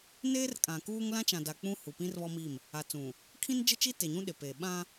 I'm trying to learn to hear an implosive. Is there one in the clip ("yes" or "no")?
yes